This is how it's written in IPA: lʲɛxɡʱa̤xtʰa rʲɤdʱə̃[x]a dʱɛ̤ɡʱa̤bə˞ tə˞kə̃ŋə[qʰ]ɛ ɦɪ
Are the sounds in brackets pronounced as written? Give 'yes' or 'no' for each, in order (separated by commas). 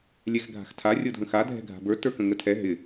yes, no